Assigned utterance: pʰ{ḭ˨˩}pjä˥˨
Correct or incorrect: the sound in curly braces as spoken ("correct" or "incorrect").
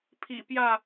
correct